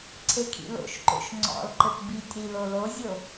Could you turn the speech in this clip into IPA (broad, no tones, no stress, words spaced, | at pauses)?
ǀʰekʰḭlo̰ʃǃo̰ʃ ŋ͡ǀɔ̰lǃɘp bitʲɾi lolozʲo